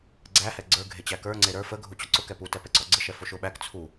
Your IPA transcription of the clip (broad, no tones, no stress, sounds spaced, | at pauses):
ɡ͡ǀ æ h ɛ ɡ͡ǀ ə˞ ɡʱ e t͡ɕ æ k ə˞ ŋ͡ǀ e ɾ ə˞ f ə ɡʱ u t͡ɕ ʊ ǀ ʊ k ɛ p u t ɛ p ɛ ǀ ɔ ɡ͡ǀ ə ʃ ɛ f o ʃ ʊ ɓ æ k t͡sʰ u